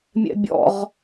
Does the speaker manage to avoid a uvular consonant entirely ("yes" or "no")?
no